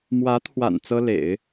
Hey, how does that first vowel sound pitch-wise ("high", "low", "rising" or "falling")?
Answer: rising